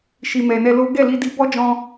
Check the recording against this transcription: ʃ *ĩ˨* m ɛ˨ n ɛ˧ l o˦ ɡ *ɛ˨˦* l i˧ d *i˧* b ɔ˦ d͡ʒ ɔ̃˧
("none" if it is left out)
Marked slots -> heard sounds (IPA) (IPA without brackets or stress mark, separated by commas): i˨, ɛ˦˨, i˧